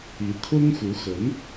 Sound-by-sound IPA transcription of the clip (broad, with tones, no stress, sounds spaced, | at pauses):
i˧˥ t̪ʰ ʊ˥ ŋ x u˧˥ x ə˧˥ n